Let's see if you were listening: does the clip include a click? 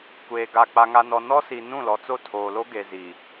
no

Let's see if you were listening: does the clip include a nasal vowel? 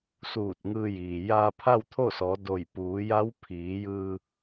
no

